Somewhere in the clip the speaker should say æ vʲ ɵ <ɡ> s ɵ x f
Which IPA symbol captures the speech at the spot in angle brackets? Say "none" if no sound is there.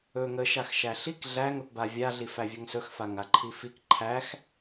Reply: ŋ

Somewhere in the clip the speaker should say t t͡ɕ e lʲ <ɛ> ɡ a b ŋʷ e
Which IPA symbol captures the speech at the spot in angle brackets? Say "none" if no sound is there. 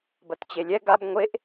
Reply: ɛ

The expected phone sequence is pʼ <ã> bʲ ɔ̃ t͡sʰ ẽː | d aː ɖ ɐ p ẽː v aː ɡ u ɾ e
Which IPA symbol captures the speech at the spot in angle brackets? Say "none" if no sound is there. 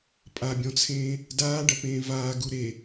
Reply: a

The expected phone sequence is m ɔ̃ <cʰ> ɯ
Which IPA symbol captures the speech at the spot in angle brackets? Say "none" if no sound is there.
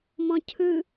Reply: cʰ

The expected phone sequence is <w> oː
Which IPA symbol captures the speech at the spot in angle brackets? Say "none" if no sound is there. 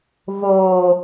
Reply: v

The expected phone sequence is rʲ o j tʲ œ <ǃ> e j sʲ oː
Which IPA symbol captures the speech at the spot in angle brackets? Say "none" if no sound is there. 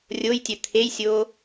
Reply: t̪ʰ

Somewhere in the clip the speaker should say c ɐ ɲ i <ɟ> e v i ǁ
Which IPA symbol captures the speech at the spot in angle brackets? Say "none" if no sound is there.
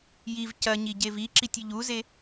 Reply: ɟ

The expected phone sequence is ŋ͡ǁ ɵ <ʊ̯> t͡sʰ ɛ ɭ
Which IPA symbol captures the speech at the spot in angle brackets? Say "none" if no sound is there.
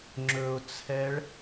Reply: ʊ̯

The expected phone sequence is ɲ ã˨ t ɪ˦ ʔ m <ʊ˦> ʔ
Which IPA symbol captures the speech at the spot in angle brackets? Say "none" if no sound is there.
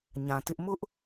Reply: ʊ˦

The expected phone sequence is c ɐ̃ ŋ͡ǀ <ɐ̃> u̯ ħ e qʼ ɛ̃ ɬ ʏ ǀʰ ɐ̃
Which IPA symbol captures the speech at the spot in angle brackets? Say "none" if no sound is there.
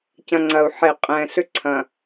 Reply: ɐ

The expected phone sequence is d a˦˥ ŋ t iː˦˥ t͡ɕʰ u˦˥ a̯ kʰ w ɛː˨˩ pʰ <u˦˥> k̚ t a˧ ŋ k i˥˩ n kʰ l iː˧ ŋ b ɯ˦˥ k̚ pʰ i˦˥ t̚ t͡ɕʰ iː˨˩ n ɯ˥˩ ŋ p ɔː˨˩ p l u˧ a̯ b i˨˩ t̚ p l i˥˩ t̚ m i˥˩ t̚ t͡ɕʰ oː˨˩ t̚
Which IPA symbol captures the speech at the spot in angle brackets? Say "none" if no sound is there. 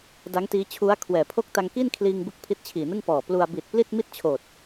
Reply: o˦˥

